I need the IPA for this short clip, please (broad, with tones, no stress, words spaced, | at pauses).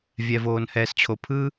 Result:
vʲɛ˧voː˧nhɛː˧st͡ɕʰo˧ pʰɯ˦